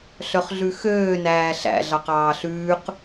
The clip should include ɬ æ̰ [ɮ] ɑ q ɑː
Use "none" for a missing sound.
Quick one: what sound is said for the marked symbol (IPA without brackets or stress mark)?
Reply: ɮ